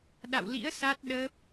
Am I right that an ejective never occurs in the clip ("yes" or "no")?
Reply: yes